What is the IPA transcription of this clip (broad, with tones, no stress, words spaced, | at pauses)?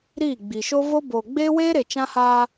ɾiː˦˨ ɡ͡bi˨ʃo˦ vo˦ boː˨ɡ͡beː˦weː˦ɾe˨ t͡ʃã˦haː˦